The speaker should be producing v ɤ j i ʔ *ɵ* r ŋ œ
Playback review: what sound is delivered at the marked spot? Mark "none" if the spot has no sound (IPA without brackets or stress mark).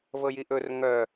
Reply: ɵ